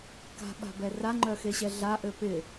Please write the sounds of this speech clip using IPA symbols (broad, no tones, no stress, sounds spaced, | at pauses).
k a̤ ɓ a̤ b ɛ r a ŋ͡ǃ œ x e ɕ ɛ ɮ a ʔ ø p ɪ